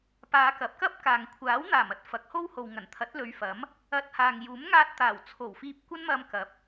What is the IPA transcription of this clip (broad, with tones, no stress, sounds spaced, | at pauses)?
p aː˨˧ k ɐ˨˥ p̚ k ɐ˥ p̚ k aː˨ ŋ kʷʰ aː˨˥ w n̪ aː˨˩ m ɐ˥ t̚ f ɐ˨˥ k̚ h o˥ w h o˨ w ŋ ɐ˨˩ n t̪ʰ ɐ˨˥ t̚ l ɵ˨˧ ɥ f ɐ˨˥ m | ɐ˧ t̚ h aː˨ ŋ j uː˨˥ m ŋ aː˧ t̚ t̪ aː˨˩ w t͡sʰ o˨˩ w f iː˧ p̚ kʷ ɐ˥ n m ɐ˧ m k ɐ˨˥ p̚